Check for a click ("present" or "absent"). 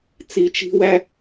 absent